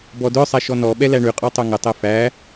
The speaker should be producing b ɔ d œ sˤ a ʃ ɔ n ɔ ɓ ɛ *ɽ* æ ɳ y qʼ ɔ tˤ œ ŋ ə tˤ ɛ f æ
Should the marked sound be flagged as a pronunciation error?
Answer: yes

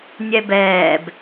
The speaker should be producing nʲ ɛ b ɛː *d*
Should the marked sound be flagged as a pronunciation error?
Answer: yes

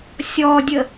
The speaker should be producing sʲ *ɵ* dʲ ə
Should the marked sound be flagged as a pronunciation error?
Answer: yes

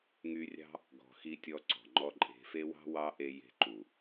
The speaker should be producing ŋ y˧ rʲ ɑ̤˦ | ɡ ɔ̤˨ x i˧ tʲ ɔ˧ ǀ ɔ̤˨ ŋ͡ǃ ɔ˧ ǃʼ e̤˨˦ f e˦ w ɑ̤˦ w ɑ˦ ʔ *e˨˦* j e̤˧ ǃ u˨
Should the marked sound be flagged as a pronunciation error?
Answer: yes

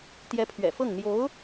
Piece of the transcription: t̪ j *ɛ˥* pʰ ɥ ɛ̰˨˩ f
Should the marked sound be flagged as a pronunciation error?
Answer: yes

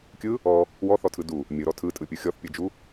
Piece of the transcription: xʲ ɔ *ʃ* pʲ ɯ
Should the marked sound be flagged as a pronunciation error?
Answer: yes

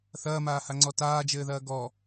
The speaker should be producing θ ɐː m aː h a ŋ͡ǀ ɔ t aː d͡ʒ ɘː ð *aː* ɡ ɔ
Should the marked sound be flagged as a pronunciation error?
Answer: yes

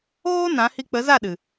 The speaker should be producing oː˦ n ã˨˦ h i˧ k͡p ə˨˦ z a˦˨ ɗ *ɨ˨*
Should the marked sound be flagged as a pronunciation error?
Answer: no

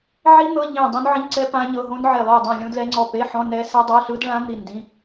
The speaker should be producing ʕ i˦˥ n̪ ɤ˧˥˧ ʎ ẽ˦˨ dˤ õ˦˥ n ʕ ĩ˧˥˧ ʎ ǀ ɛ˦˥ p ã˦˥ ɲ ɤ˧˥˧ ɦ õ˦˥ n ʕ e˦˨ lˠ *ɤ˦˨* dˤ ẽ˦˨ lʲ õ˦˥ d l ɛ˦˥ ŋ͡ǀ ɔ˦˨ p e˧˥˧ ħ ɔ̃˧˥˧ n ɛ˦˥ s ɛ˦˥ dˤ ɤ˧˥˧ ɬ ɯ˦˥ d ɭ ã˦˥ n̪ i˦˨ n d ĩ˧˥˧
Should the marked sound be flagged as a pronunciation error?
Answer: yes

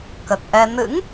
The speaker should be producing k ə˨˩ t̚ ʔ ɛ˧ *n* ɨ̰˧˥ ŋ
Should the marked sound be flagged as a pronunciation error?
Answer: no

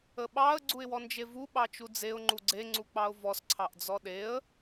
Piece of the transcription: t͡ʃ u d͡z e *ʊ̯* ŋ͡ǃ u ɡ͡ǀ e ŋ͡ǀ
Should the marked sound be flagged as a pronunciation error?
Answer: no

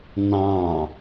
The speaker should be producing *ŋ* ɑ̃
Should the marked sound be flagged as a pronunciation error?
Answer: yes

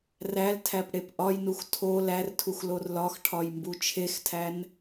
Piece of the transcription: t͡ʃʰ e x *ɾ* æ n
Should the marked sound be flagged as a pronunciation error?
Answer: yes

